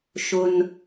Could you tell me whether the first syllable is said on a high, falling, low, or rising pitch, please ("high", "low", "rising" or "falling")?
high